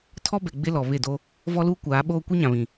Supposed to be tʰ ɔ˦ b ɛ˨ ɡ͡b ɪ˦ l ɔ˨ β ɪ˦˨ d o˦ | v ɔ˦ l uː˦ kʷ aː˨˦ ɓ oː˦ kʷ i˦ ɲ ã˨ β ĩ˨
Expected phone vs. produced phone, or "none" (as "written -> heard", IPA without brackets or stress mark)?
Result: none